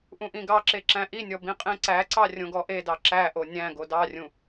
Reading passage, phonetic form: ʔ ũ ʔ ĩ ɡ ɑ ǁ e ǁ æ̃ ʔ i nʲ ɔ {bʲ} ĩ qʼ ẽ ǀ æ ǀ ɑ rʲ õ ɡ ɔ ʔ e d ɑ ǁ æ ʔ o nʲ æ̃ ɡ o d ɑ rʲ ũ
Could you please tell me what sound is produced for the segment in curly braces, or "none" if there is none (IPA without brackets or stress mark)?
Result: b